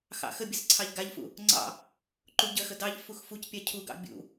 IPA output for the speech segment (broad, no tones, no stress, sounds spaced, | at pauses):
x ɑ̰ x ə bʲ ə z ǀʰ ɑ ʎ ɡ a ʎ f ṵ | ŋ͡ǀ ɑ̰ | ǃ u ɟ ə x ə d ɑ ʎ f u x f u c pʲ a cʰ u ɡ ɑ̰ bʲ ṵ